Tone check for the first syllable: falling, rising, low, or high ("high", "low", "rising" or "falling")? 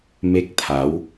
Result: rising